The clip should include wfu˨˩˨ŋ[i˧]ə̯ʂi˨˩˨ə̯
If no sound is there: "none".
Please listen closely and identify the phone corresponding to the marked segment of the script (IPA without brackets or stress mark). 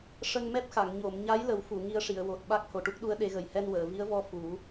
i˧